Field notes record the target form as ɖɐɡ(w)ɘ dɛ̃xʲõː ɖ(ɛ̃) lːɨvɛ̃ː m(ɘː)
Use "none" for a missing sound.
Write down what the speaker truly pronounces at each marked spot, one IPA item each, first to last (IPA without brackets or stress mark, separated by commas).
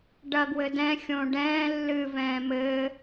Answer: w, ɛ̃ː, ɘː